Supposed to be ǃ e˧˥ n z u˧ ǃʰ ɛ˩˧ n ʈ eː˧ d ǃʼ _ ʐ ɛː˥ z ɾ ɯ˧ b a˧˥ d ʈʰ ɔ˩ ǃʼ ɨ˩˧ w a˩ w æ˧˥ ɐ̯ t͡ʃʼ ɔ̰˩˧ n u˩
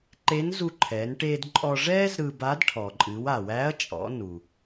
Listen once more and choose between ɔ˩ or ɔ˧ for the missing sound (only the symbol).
ɔ˧